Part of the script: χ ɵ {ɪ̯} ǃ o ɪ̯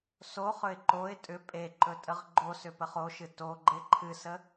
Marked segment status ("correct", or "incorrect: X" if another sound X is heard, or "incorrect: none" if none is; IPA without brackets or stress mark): correct